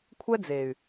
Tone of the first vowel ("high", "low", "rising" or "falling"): high